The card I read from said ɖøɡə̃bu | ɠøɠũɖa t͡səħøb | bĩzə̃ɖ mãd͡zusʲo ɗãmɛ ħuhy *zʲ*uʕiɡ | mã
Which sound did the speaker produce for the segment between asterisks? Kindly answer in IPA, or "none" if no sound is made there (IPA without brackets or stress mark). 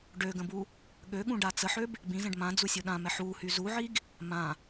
z